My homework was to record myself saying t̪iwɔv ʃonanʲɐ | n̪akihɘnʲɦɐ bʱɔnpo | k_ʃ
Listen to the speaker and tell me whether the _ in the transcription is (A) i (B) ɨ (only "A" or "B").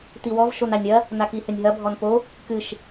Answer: B